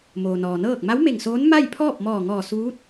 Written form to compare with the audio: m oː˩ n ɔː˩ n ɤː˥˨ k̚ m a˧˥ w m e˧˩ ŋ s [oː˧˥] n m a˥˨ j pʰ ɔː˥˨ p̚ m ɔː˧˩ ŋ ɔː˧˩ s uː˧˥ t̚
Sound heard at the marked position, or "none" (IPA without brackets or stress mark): oː˧˥